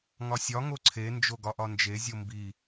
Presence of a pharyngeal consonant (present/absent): absent